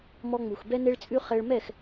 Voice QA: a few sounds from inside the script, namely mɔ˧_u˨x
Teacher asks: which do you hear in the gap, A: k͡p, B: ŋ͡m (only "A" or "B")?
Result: B